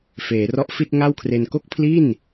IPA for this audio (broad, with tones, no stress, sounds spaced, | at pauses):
f eː˩˦ r ɔ˦˥ ʔ f i˥˩ t̚ ŋ a˥˩ w kʰ r e˧ n k o˥˩ k̚ pʰ l i˥˩ n